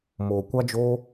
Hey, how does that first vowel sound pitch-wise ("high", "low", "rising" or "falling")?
low